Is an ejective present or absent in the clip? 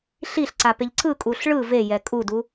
present